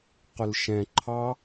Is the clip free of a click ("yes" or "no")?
no